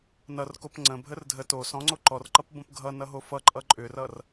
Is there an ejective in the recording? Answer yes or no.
yes